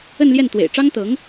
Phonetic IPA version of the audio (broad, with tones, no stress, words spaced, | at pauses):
ə˥˧nljɛ˥˩n t̪wḛ˨˩ɪ̯ʈ͡ʂɑ˥ŋt̪ɤ˧˥ŋ